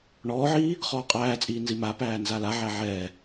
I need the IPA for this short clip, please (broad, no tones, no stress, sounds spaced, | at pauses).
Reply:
ɳ ɔː ʕ iː | χ ɔː qʼ æː t͡sʼ iː n z i m a p æː n z a l a ʕ æ ʕ ɛː